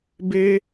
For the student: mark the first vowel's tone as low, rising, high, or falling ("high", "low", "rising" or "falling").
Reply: high